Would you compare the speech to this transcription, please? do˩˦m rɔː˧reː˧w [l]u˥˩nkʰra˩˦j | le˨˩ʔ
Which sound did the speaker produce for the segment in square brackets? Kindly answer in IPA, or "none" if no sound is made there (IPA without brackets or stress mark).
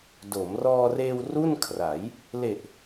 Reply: r